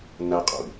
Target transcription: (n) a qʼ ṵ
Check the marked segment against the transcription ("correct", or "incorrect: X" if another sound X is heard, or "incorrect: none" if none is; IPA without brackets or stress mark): correct